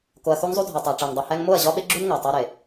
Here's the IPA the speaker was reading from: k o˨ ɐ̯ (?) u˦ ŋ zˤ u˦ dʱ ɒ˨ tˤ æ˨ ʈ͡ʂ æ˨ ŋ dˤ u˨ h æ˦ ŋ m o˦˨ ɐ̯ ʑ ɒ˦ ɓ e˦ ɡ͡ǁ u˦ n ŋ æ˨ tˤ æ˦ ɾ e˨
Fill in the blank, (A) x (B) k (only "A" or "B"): A